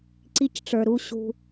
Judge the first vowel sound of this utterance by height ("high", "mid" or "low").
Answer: high